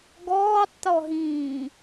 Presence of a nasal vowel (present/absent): present